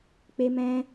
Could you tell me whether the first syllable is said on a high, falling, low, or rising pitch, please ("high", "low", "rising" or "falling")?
high